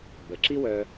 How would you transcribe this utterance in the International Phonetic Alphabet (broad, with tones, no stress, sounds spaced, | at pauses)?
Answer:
b ə˩ ǁ i˥ w œ˧